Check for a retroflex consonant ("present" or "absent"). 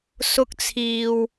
absent